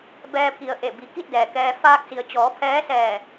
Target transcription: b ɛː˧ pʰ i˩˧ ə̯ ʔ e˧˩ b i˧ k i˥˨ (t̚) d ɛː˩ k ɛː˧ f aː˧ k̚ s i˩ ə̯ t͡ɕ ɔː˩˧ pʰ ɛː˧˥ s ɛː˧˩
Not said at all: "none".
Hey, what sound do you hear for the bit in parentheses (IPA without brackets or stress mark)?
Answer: t̚